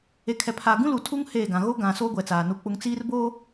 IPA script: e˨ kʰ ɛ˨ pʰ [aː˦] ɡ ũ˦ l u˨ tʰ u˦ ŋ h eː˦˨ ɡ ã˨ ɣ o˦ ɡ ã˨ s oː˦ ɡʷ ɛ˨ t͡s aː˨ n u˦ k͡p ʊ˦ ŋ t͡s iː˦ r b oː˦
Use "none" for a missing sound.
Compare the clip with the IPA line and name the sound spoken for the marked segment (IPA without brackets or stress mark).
aː˨